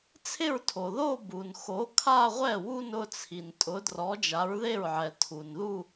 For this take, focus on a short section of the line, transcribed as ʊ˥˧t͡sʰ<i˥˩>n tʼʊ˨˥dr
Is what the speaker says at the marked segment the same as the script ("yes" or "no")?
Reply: no